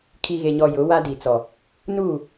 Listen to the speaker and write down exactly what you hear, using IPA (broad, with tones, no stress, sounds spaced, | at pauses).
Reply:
kʰ i˨ ɣ e˨ ɲ ɔ˨ j ʊ˨˦ w a˦ d i˨ t͡s ɔ˨ | n uː˦˨